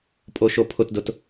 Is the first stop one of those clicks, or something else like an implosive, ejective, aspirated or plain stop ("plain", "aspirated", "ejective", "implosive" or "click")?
ejective